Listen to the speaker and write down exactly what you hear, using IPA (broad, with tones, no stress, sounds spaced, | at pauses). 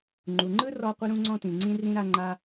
ŋ͡ǃ u˩ ŋ͡ǃ ɯ˥ r ɔ˥ qʷ ɯ˥ ɾ ũ˥ ŋ͡ǀ ɔ̃˥ t ĩ˩ ŋ͡ǀ ĩ˥ r ĩ˥ ɾ a˥ ŋ͡ǃ a˥